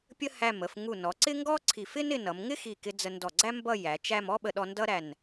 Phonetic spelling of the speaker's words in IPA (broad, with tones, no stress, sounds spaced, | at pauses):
pʲ ə˥ h æ˧˩ m ə˩˧ f ŋ u˧˩ n ɔ˩˧ ǀ ɪ˥ ŋ ɡ ɔ˥ ǀʰ i˧˩ f ɪ˥ n ɪ˧ n ʌ˩˧ m ŋ ɪ˥ x i˧˩ k ɪ˧ d͡z ə˧ n d ɔ˧˩ ɡ͡ǀ æ˥ m b ʌ˥˧ j æ˩˧ t͡ʃ æ˥˧ m ɔ˥ ɓ ə˧ ɗ ɔ˧ n d ʌ˥ ɾ æ˧˩ n